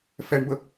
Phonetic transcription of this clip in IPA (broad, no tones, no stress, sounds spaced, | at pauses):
f ɛ ɳ b ə